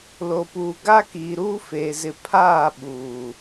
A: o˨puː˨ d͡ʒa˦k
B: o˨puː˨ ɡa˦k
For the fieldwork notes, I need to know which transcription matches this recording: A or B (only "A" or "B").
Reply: B